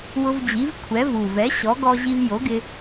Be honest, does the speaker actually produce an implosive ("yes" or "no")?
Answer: no